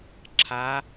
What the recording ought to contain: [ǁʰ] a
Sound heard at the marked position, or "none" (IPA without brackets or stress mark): ǁʰ